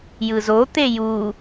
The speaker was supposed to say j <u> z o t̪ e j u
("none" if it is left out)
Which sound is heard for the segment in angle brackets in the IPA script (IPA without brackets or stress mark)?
ɯ